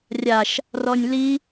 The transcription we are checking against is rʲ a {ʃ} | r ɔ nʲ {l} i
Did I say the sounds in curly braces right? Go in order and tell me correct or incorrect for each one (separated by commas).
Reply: correct, correct